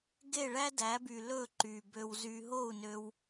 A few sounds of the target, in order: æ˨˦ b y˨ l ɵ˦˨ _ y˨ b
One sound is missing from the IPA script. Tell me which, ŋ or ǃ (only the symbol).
ǃ